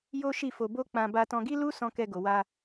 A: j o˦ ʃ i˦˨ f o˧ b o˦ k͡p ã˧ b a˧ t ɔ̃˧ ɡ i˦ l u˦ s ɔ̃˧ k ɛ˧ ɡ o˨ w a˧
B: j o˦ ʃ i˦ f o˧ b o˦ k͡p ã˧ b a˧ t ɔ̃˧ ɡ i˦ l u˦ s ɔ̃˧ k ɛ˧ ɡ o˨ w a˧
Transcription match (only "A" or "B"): A